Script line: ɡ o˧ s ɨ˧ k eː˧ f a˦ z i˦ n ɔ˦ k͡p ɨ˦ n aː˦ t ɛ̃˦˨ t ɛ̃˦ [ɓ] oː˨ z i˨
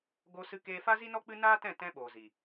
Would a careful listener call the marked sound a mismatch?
no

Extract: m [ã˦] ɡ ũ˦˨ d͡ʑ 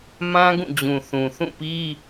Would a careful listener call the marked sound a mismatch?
no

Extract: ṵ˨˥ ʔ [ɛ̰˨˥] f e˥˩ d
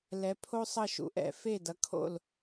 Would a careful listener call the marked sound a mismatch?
no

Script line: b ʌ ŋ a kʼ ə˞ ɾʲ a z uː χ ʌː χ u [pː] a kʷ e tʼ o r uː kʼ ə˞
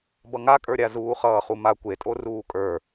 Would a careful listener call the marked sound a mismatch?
yes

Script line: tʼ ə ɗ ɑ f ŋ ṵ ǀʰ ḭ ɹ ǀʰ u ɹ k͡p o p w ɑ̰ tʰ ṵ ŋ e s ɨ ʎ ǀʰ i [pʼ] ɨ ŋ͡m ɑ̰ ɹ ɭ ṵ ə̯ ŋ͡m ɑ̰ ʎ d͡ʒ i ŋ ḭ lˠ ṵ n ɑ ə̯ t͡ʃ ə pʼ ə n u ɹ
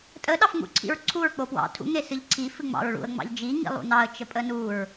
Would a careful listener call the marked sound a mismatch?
yes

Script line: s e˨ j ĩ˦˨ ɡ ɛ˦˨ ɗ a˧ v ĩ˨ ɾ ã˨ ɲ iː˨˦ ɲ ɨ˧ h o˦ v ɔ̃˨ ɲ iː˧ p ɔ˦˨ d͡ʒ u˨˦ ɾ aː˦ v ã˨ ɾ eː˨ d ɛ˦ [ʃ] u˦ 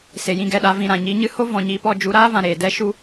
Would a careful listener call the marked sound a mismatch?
no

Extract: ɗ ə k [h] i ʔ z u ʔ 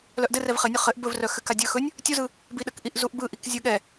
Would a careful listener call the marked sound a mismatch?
yes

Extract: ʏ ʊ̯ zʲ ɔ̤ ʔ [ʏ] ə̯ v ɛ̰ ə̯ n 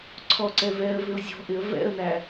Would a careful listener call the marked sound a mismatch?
yes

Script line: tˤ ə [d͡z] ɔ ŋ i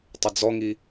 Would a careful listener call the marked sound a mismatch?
no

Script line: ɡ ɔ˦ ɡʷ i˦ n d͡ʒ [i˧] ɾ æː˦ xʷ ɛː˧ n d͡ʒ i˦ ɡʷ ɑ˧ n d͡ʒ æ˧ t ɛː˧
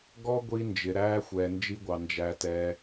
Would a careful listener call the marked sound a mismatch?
yes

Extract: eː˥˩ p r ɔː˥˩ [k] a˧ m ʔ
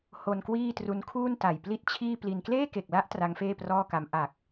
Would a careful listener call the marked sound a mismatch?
no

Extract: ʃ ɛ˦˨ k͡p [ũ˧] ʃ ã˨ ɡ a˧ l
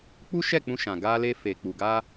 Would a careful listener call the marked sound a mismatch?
no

